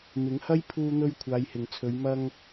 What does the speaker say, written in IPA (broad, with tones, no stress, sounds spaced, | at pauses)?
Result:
m ɪ˨˥ ŋ h ɐ˥ j pʰ uː˧ n̪ ɵ˧ ɥ kʷʰ aː˨˧ j h ɪ˨ ŋ t͡sʰ ɵ˨˧ ɥ m ɐ˧ ŋ